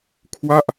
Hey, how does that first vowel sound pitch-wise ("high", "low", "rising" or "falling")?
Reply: falling